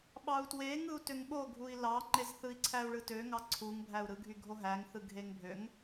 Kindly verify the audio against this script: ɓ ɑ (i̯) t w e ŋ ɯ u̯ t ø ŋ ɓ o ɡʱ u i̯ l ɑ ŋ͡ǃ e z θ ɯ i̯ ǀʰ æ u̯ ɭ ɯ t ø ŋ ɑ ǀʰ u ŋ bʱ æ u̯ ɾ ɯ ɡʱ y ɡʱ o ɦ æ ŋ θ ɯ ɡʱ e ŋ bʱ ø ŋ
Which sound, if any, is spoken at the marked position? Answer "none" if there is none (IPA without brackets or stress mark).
u̯